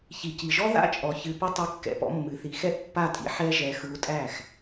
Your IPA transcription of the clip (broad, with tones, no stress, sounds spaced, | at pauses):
ç i˨ c i˨ ʒ ɔ˦ ð a̰˦ t͡ʃʼ ɔ˨ ç ɨ˧ p ʏ˦ tˤ ɨ˧ kː ɛ̰˧ p ɔ̰˧ mː ɨ˨ θ i˨ x ɛ˦ ʔ pː a˦˨ tʼ ḭ˦ ħ ɛ˦ ʒ ɛ˧ x ɯ˧ u̯ tʼ æ˦˨ x